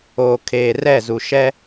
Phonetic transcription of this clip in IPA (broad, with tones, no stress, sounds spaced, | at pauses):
oː˨ kʰ eː˨ r ɛ˦˨ z u˨ ʃ ɛ˦